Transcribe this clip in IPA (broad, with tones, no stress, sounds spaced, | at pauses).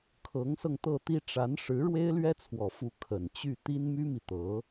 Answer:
kʰ ɤ˧˥ ŋ s ɤ˧ ŋ t̪ ɤ˥˩ t̪ i˥ ʈ͡ʂ a˧˥ n ʂ ɻ̩˧˥ ɻ w e˥ ɪ̯ l ɥ ɛ˥ t͡sʰ w ɔ˨˩ f u˧˥ kʰ ə˨˩ n t͡ɕ y˥˩ t̪ i˥ n m y˥ m i˨ t̪ ɤ˧˥